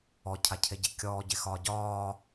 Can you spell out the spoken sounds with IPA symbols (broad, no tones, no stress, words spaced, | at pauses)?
ɔcʰa cʰeɟekʲɔːɟe xɒːɟɒː